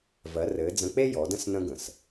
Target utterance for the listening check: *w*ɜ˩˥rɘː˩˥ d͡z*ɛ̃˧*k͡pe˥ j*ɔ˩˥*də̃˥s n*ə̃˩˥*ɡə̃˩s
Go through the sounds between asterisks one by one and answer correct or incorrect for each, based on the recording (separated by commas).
incorrect, incorrect, correct, incorrect